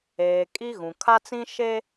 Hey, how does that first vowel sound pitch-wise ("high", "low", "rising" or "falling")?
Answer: low